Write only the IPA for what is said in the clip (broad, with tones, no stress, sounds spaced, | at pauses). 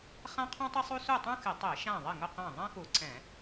χ ã˥ qʰ ũ˥ tˤ ɪ˥ sˤ u˥ s u˥˨ tˤ ũ˥ x ɪ˧˩˧ tˤ e˧˩˧ ʃ ã˥˨ ðˤ ɪ˥˨ ŋ ʊ˥˨ q ã˥˨ ðˤ ã˥ x u˧˩˧ ǀ ɛ̃˧˩˧